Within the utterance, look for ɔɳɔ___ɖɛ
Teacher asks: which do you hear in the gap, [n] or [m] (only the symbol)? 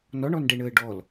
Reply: n